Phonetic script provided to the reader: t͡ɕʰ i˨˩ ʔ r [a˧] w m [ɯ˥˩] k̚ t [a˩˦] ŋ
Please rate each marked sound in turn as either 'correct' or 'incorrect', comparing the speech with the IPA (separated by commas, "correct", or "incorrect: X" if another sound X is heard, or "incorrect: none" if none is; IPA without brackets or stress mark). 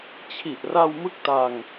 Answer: correct, correct, incorrect: a˧